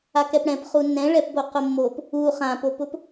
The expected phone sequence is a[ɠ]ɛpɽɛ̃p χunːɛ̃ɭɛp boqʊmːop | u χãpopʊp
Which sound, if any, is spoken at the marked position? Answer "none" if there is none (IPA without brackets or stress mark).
k